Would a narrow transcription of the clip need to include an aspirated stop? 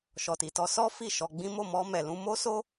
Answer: no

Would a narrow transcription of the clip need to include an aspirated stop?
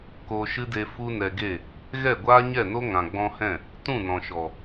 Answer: no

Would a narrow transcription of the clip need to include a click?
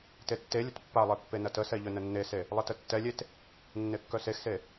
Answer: no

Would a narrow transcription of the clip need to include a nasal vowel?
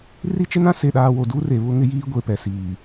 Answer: yes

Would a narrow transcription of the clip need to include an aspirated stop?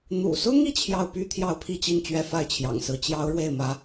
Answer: yes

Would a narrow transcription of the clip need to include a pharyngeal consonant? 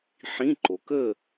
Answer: yes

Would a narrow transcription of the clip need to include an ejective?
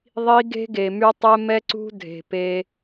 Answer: no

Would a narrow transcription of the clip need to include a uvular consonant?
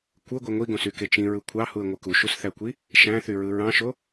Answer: no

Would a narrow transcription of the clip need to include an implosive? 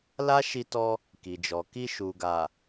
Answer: no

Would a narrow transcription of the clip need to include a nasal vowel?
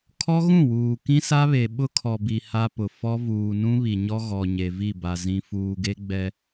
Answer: yes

